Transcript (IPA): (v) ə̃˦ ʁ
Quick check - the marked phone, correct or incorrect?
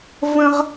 correct